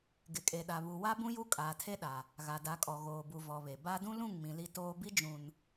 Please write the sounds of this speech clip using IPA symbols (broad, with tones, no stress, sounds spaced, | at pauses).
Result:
ɡ ɪ˨ kʼ e˨ ɗ a˨ β u˨ w a˦ b ũ˦ j u˦ kʼ aː˨ tʰ e˦ ɗ a˨ | ɣ a˨ d a˨˦ kʼ ɔ˨ ɣ oː˨ b u˨ v ɔ˨ β e˨ b a˦ d ũ˦ l ũ˦˨ ŋ m ĩ˨ l i˦ t oː˦ b i˦ d͡ʒ ũ˨ n